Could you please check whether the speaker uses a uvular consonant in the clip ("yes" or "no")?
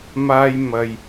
no